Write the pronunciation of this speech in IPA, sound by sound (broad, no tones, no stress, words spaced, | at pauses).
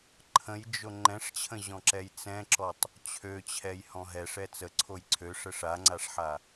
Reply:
ǃʰə̃jd͡ʒo ŋ͡ǃɛ̃ʂt͡ɕʰə̃ʑɔ̃ǁɛj t͡sɛ̃ǁɔtˤ | t͡ɕʰøt͡ɕʰɛjhɔ̃ ɦɛʂɛ t͡səǀʰoj ǀʰøʂə ʂaŋ͡ǀaʂħa